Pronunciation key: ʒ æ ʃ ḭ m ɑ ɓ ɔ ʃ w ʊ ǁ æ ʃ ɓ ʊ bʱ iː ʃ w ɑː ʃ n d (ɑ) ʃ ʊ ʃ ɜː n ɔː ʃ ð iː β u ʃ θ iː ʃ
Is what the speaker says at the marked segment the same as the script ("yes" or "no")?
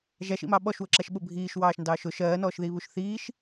no